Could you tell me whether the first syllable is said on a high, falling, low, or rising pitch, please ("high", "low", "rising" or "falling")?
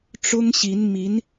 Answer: high